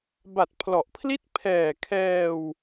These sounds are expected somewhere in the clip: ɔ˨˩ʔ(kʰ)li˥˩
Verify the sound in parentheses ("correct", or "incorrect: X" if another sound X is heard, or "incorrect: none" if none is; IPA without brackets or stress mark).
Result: incorrect: pʰ